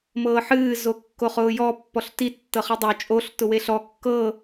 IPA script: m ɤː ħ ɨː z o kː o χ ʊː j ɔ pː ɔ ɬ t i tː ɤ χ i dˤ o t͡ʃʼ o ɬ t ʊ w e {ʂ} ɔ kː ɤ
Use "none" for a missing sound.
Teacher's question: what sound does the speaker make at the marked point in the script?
ɬ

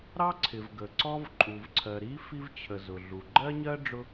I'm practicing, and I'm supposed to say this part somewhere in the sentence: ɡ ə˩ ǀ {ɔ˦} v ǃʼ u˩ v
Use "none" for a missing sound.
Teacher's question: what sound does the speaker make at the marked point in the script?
ɔ˦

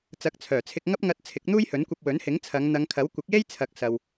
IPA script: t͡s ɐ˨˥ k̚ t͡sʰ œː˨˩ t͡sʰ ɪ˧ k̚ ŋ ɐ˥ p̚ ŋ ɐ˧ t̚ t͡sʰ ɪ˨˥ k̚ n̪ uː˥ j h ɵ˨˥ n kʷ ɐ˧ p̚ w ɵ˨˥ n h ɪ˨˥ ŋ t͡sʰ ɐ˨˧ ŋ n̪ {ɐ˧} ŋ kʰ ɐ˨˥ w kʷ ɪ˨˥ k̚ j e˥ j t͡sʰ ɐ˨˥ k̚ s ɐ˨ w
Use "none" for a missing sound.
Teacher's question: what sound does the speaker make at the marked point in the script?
ɐ˨˧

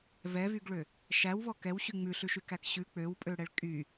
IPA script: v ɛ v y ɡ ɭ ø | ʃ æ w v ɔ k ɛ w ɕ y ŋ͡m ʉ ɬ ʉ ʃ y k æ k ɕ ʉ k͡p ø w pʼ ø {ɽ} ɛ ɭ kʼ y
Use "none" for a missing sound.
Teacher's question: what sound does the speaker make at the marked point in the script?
ɽ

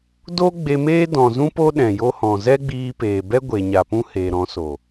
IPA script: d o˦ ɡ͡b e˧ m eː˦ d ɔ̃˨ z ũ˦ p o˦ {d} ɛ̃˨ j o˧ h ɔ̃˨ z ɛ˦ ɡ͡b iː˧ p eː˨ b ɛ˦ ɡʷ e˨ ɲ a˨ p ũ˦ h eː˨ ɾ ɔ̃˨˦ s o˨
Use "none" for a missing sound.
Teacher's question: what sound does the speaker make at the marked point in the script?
ɗ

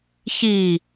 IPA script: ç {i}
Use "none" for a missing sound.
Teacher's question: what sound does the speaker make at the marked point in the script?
i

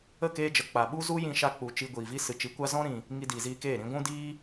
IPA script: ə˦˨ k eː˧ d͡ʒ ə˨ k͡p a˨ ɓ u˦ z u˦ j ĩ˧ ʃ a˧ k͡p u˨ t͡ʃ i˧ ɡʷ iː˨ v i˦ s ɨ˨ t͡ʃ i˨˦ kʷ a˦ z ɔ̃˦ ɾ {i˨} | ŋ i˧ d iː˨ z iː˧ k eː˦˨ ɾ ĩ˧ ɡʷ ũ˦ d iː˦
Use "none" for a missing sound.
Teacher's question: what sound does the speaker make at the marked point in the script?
ĩ˨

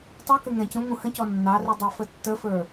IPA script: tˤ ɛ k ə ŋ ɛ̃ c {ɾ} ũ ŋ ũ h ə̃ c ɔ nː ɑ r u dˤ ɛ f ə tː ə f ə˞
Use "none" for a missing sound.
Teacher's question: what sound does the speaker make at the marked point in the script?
ɾ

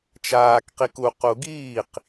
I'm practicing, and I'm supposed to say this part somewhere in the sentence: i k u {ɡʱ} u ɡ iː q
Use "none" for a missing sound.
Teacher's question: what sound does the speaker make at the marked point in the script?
q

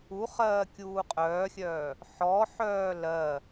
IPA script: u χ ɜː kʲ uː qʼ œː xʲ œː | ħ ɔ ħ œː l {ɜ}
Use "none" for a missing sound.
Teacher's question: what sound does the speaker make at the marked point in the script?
ɜ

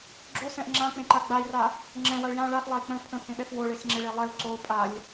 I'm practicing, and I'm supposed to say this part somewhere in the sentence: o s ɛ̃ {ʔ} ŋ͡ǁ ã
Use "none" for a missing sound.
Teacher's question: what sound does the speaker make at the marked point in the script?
ʔ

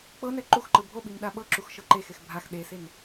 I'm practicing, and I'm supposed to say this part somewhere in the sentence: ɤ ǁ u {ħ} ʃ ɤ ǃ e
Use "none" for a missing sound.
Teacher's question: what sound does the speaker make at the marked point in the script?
x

